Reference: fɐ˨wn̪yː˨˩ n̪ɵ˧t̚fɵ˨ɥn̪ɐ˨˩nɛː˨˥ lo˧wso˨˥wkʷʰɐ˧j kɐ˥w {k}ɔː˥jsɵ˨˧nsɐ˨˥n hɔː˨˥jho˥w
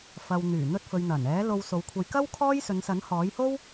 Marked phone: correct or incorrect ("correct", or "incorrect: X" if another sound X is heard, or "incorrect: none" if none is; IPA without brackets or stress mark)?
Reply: incorrect: kʰ